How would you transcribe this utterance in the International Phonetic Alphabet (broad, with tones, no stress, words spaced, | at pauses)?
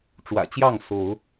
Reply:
ʈ͡ʂwä̰˨˩t͡ɕjɑ˥˨ŋ so˨˦ʊ̯